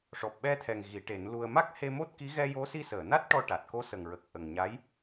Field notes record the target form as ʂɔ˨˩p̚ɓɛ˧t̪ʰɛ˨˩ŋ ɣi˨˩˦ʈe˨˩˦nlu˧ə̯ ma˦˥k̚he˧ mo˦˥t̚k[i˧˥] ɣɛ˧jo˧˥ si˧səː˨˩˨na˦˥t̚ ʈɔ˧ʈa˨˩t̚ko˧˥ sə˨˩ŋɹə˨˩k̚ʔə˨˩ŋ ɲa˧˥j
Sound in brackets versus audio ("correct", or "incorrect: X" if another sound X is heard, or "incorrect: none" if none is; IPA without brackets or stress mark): correct